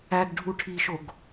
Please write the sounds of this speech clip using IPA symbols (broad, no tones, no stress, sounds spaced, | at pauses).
æ ɡ ɖʱ u ʈʰ i ʃ o ɡ